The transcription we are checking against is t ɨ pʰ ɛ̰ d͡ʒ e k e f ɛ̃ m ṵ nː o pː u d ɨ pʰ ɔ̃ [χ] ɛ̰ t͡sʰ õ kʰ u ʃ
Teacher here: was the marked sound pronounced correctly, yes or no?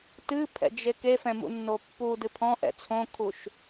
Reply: no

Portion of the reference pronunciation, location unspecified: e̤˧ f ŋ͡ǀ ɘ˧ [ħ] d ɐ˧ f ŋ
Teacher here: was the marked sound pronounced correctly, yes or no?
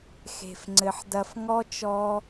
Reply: yes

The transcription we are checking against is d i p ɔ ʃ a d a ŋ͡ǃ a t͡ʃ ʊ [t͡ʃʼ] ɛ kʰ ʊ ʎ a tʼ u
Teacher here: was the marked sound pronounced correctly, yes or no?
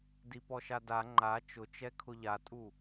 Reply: no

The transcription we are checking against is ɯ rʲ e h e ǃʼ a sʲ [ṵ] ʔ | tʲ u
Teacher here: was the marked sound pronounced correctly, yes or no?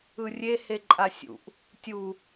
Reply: yes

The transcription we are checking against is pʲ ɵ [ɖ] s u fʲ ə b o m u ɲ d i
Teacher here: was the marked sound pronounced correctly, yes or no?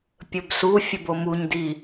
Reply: no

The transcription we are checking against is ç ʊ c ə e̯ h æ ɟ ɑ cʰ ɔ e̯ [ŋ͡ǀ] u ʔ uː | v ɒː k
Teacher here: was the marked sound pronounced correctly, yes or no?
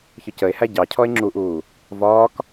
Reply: no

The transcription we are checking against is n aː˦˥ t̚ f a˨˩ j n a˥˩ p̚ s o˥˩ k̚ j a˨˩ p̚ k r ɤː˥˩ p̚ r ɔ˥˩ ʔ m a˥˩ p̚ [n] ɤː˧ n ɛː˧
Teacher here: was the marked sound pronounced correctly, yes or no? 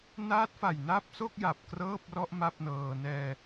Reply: yes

